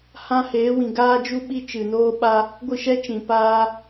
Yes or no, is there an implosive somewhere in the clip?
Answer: yes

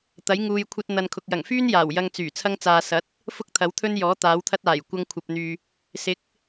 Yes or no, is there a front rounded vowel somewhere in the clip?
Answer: yes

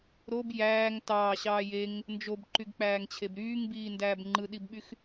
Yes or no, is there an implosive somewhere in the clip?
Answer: yes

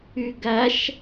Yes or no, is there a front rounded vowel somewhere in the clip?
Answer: yes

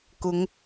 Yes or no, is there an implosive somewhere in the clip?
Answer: no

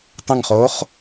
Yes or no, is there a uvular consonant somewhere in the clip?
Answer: yes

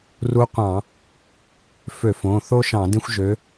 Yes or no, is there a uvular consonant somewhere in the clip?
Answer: yes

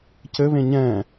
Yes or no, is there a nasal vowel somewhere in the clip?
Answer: yes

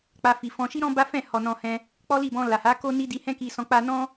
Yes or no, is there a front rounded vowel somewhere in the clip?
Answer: no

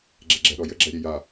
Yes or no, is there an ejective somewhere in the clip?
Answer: no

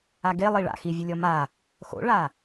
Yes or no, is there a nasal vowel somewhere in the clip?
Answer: no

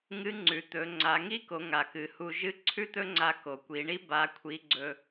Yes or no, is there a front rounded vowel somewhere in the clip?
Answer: no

